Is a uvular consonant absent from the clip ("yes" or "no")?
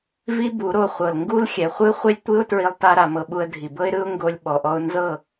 no